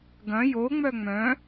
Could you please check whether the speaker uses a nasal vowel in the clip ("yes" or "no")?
yes